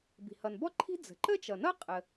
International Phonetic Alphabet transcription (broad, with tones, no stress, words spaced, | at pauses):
bi̤˩ hʌ˩nbɔ˥ǃʰi̤˥ d͡zə̤˩ǃə˥t͡ʃʌ˩nʌ˥ qʼə˩